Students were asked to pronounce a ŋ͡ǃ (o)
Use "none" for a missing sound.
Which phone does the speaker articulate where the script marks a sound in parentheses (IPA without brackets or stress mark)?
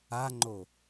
o